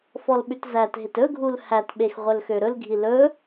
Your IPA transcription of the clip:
f ɔ l ɓ ʉ t z æ t ɦ e t ɵ ɡʱ u l h æ t ɓ e x ʁʷ œ l x ø ɾ ɵ l ɡʱ i l ɵ

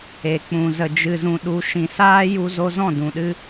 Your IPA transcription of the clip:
e˨ k͡p ũ˨ z ə˨ d͡ʒ ɨ˨ z ũ˨ ɗ u˧ ʃ ĩ˨ s aː˦ j u˧ z o˧ z ɔ̃˦˨ d ũ˨ ɗ ɨ˦

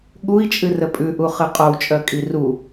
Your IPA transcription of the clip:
ɠ u i̯ t͡ʃʼ ɨ r ə pʼ ʉ ʔ u χ ɨ qʼ o u̯ t͡ʃʼ œ kʼ i r u

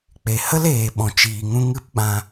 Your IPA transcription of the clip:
k͡p e˨ h ə˦ l eː˨ ɓ ɔ̃˨ t͡ʃ iː˨ ŋ ũ˧ ŋ ɨ˦ p ɓ ã˧

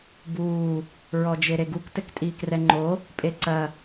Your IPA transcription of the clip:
b uː | ɹ ɔ d͡ʒ e ɾ e ɡ u k t ɘ k tʼ iː k r ɛ ŋ͡ǃ o | pʼ e ǀ ɐ

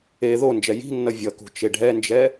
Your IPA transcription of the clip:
e ð o n d͡ʒ ɛ j i̤ nː ʌ vʲ ʌ k ṳ t͡ʃ e ɖʱ ɛ n d͡ʒ ɛ

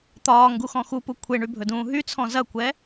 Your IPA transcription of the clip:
t̪ ɒː ŋ ɡ u x ɔ̃ x u p u kʷʰ e ɳ y bʱ ɵ d ũː ɦ y t͡sʰ ɔ̃ z ɐ kʷ ɛ

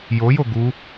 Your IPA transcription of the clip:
j o j o ɡ u

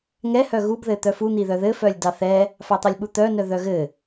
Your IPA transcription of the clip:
ŋ ɛ h œ ɣ u b ð ɘ t̪ œ f u n̪ i ð œ ð ɘ f œ lʲ d ɑ θ ɛ | f ɑ t̪ ɑ lʲ ɓ u t̪ œ n œ ð œ ɣ ɘ

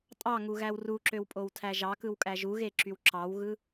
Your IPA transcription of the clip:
tʼ ɑ ŋ u ɣ æ w r u ǁ ø w pʼ o w tʰ æ ʒ ɑ k ɯ w kʼ æ ʒ u ɣ e ǁ y w ǁ ɑ w ɣ ɯ

